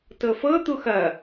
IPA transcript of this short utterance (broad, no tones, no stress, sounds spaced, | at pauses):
t ɤ f ɤ t̪ u x ɐ